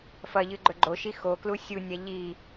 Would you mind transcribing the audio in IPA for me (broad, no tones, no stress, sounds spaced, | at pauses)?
f ɐ ʎ ɨ ɡ͡ǃ ɵ ɡ͡ǃ o ʃ i x o k l u sʲ u nʲ a ʎ i